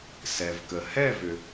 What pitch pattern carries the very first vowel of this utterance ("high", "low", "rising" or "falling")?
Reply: low